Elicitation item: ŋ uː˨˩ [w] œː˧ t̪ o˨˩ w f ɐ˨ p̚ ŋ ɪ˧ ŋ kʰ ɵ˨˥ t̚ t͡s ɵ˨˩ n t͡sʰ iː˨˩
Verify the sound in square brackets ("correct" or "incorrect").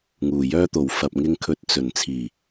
incorrect